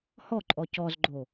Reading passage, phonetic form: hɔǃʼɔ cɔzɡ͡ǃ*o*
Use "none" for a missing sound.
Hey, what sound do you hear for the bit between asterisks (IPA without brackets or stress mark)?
o